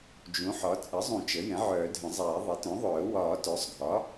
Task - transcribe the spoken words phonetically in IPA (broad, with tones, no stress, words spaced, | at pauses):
d͡ʒũ˩˥ħɒ˩˥ t͡sʼə˩˥zˤũ˨˩˦ t͡ʃə˩˥jɛ̃˩˥ ʕœː˨˩˦dʱə̃˨˩˦zˤɛː˨˩˦ ðˤe˩˥tœ̃˩˥ðˤœː˨˩˦ wɒː˨˩˦ tœ˩˥sˤɡʱɒ˩˥